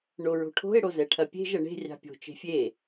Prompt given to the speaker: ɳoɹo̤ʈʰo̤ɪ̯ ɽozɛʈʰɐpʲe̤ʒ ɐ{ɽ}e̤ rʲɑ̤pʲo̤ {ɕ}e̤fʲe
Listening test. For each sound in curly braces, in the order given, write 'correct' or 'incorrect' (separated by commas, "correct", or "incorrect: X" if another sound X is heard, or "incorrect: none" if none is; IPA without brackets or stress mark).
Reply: incorrect: ɳ, incorrect: t͡ʃ